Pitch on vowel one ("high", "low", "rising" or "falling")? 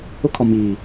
high